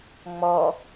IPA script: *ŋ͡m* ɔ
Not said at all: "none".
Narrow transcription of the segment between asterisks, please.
ŋ͡m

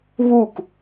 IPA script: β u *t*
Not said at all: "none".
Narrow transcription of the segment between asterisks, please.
k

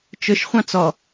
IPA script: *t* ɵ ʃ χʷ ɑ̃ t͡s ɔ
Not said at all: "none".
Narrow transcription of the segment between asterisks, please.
t͡ʃ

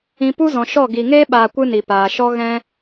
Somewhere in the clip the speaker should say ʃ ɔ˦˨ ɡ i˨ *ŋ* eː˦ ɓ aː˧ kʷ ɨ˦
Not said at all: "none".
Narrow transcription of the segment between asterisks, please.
ŋ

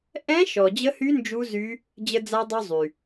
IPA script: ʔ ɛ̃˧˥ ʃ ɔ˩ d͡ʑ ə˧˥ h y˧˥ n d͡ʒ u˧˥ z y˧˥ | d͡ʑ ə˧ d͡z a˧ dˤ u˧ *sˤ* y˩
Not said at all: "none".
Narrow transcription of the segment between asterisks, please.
zˤ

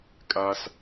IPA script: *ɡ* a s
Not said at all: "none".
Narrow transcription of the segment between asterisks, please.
kʼ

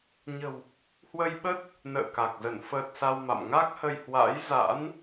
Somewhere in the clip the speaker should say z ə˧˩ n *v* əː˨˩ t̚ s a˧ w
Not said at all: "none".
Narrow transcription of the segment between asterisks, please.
f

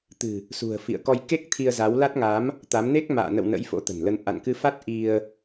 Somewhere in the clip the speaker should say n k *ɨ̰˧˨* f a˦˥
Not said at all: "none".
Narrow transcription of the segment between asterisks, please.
ɨ˧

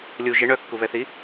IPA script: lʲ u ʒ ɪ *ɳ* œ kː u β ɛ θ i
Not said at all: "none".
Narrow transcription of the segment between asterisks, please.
ɳ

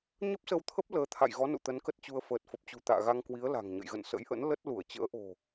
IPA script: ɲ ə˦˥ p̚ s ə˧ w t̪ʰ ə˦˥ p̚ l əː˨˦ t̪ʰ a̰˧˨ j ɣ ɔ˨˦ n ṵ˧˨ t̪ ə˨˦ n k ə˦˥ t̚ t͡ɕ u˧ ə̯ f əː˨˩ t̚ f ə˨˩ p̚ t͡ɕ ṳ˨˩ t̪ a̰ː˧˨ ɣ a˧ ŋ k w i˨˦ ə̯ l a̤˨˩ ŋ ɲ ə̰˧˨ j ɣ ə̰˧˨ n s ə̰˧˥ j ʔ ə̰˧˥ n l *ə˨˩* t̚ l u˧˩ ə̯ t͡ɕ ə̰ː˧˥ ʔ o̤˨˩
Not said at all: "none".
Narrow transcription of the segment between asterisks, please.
ə˦˥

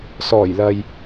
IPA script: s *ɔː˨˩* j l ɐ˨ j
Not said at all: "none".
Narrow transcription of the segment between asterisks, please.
ɔː˨˩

